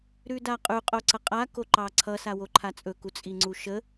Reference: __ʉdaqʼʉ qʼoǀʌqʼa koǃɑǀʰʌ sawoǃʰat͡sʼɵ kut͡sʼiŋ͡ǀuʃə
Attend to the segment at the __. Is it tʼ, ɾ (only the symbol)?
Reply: ɾ